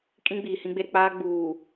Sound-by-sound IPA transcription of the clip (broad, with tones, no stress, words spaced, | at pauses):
kʼĩ˦ɡ͡biː˨hĩ˦ɡ͡be˦ ɾɪ˨k͡paː˦ɡ͡buː˨